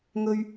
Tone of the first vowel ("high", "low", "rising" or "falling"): low